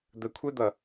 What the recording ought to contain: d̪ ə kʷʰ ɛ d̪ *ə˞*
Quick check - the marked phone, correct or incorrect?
incorrect